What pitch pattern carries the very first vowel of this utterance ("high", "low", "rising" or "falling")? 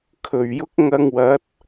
low